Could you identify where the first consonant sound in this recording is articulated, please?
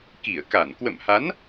velar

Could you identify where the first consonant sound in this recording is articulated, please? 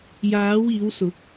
palatal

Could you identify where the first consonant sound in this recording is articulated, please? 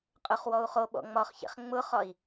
uvular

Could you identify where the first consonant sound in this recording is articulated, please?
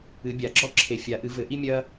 labial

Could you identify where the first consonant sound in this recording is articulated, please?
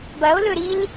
labial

